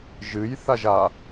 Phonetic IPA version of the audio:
ʒɨj θaʒa

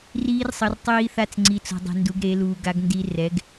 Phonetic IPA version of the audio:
riː˦˥rsˤʌ˧r tˤiː˧θa˧t͡s ŋ͡ǀi˨˥t͡so̤˧dˤe̤˧ ndu˨˥ɡɾe˨˥ luː˧ɡa˦˥ɡndi˦˥ rɛ˨˥ɡ

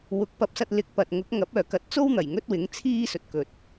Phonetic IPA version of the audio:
wʊ˨˥k̚pɐ˧p̚sɐ˧t̚ lɪ˨˥k̚pɐ˨t̚ŋʊ˨˥k̚ ŋɐ˨˥p̚œː˨kɐ˨˥t̚ t͡so˥wn̪ɐ˨˩j ŋɵ˥t̚wɪ˨˥ŋt͡sʰiː˥ sɵ˨t̚kɵ˨t̚

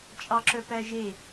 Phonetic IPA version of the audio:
t͡ʃʼɑǁœpæʒe

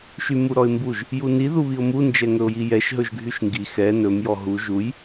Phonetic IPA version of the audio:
ʃymuɾɔɪ̯mbuʒ | juni ðuβiʊ̯mu nd͡ʒɛŋɵʊ̯jijɛʃ ɦɵʒɡʱyʃŋɡi xɛ nɵm jɔɦu ʒuj

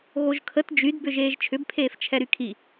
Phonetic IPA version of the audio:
ɣoʒkʰət d͡ʒydbʏ ʒeːʒt͡ʃʰʏbpʰeːf t͡ʃʰɛɾykʰi

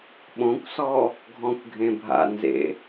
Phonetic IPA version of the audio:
ɓõkʷsɔ | ɡʱɔ̃kʷɡʱẽbʱa̰nzḛ

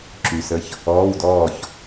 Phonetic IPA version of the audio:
ǁy˨sə˦˥ç | ɔː˧˥˧wdɔː˥˨ç

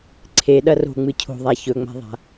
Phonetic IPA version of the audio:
ǀʰe ɗɐro̤ŋ͡mɨ cʰo̤ðˤa çɵŋ͡ma̤ðˤa̤

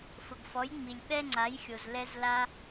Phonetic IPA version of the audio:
fʊ˩ɡfɔ˩˥j ŋ͡mi˩lʲɓɛ˥ŋ͡ǀa˩˥jxʲo˩z lɛ˧zla˧

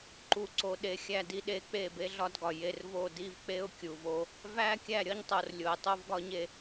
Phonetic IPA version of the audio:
ǃu˨ǀo˨ɗe˨ xʲæ˨di˨ɗe˨ k͡pe˦˨be˦ɮɒ˦dɡɒ˨ je˨r vo˦˨ di˦vk͡pe˦ʊ̯ kʲu˨v o˦ | væ˦ kʲæ˦˨ɾʲɒ˦ɲtˤo˨r lʲo˨ɪ̯tˤo˦vɡɒ˦ɲe˦

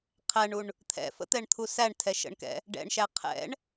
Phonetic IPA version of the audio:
qʰæɳuɳ | t̪ʰɛ̰fə̰t̪ɛɳt̪ʰu sæɳ tʰɛʃə̰ɳkɛ̰ | ɖɛ̰ɳʃæ qʰɛ̰ɳ

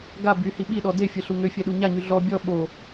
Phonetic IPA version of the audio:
ɡa byhi ɓiɗɔ defʲəɬu ŋøfʲɛɗu ɲaɲy ɮɔ bʲɔ ɓo

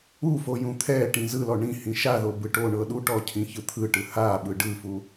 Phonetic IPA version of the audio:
ufojũ t̪ʰɛʈĩ zɯlɔ ɳĩhĩ ʃaðobɯ ʈoɳɤ ɗuʈɔcʰĩçɯ t̪ʰɯʈɯ haɓɯ ɖɯfu

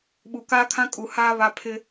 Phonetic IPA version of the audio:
ɓu˨kaː˦kʰã˦kʼu˨ haː˦ βa˦ pʰɪ˦

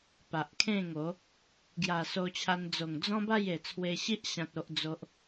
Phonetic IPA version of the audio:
pa˨ʔkʰẽ˥˧ŋo˨˦ | ɡja˨˩so˧t͡ɕʰa˧nd͡zo˨˩ŋ d͡zɔ̃˦ba˥˧je˨˩ t͡sʰwe˧ɕi˦ʔ ɕã˦t̚o˦ʔd͡zo˦ʔ

